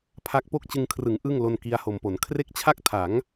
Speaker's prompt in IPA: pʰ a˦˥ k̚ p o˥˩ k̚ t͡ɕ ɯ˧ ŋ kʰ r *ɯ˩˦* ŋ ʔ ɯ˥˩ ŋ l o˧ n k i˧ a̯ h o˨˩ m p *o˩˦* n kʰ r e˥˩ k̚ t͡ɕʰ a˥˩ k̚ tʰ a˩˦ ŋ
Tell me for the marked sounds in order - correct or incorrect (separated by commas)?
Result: correct, correct